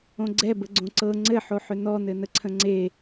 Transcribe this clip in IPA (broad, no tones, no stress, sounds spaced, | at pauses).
õ ɡ͡ǀ ɛ b ə ɡ͡ǀ õ ǀ ɤ ŋ͡ǀ ɘ ħ o ħ ʏ n ɔ n ɘ n ə ǀʰ ə̃ ŋ͡ǀ e